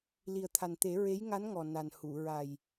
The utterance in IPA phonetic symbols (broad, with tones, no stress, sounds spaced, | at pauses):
l i˨˩ ə̯ t̪ʰ a˨˩ n t̪ e˨˩˦ ɹ e˧˥ j ŋ a˧˥ n ŋ ɔ˨˩ n a˨˩ n h u˨˩˨ ɹ a˨˩ j